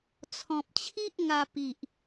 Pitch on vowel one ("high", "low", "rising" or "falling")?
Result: low